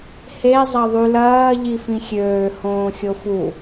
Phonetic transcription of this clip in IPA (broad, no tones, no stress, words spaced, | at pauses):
he zˤɐðˤylɐː ʎifĩxʲøː hõːxʲofu